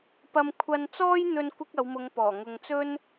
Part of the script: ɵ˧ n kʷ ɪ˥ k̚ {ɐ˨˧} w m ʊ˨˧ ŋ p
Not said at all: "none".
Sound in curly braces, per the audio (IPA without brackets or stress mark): ɐ˨˧